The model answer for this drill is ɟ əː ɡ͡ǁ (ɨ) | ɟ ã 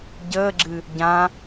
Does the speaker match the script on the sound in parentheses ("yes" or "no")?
yes